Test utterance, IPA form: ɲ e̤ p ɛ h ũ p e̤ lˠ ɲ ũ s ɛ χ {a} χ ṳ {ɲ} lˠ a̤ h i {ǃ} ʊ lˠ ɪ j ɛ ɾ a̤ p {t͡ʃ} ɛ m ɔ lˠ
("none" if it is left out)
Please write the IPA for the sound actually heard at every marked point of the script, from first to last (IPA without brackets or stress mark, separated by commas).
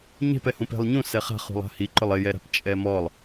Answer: a̤, none, ǃ, t͡ʃʼ